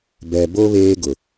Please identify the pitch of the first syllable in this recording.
low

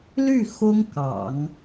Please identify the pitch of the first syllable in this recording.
falling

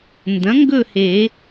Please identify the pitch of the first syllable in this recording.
rising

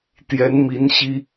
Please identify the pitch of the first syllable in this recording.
rising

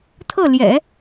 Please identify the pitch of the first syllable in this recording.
falling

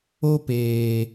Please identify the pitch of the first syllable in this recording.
high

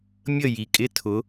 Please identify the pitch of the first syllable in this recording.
falling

